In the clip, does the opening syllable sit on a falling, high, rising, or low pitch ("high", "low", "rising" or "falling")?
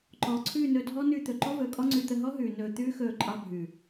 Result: low